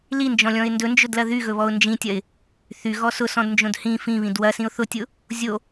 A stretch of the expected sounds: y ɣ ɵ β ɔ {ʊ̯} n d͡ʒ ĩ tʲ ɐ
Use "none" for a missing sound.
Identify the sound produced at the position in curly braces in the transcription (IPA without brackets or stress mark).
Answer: ʊ̯